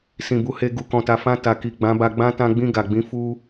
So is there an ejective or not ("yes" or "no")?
no